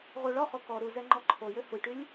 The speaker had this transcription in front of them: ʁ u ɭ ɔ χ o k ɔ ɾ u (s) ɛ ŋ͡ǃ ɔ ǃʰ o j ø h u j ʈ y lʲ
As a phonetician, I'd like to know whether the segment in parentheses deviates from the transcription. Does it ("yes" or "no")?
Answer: yes